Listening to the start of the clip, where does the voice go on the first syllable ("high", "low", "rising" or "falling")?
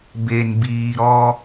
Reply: low